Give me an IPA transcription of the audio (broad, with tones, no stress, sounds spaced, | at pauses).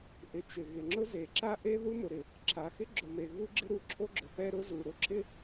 ʔ ɪ˩ t͡ʃ ɪ˩ ɣ ɪ˩ ŋ͡ǁ ʊ˥ z e˩ ǁ a˥ ʔ e˥ ð u˥ m ʊ˩ ɾ ɪ˩ | ǁʰ a˩ x ɪ˥ ɡ͡ǁ ʊ˩ m e˩ ɣ u˥ ɡ͡ǁ ɪ˥ ɾ u˩ ǁʰ o˥ ɡ͡ǁ ʊ˩ p ɛ˥ ɾ ʊ˥ z u˩ ɾ ʊ˥ ǁʰ ɪ˥